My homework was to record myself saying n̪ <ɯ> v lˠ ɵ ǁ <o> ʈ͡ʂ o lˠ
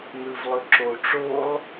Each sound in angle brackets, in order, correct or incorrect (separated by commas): correct, correct